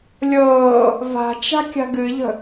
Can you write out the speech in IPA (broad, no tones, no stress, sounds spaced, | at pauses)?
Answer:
lʲ ɤː | v a̤ t͡ʃ a̤ kʲ a̤ ɡ ɨ ʎ ə̤